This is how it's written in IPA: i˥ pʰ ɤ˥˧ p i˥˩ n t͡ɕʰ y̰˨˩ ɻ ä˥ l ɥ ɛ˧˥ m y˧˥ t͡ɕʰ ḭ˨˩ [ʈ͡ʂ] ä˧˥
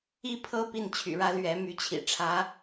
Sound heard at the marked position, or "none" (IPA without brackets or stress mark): ʈ͡ʂʰ